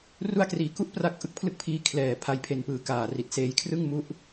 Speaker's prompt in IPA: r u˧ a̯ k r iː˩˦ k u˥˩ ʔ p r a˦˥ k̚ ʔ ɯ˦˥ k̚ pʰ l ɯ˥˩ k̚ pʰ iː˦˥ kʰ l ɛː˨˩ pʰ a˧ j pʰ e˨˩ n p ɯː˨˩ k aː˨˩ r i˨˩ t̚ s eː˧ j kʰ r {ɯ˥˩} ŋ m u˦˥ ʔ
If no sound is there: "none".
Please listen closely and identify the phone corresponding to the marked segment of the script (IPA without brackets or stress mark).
ɯ˥˩